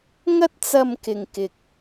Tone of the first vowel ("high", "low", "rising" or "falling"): high